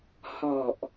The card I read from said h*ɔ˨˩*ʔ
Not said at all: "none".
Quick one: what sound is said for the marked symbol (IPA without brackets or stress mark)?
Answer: ɔ˨˩